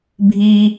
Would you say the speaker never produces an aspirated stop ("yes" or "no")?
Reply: yes